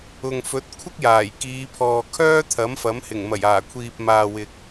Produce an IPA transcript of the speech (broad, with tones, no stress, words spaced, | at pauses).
ʊ˨ŋ fɵ˨˥t̚kʷʰɪ˥k̚jaː˨˩j kiː˨˧pʰɔː˨ kʰœː˥t̪ʰɐ˨˥mfɐ˨˥mhɪ˨˩ŋ mɐ˨˩jaː˨˩kʷʰiː˨p̚maː˨ wɪ˨k̚